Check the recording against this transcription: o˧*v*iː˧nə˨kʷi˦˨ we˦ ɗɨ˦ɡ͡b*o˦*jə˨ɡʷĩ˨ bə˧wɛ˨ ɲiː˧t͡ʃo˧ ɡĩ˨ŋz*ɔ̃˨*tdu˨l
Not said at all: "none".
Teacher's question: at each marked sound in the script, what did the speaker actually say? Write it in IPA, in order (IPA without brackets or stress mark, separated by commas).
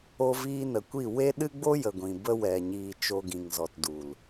v, o˦, ɔ˨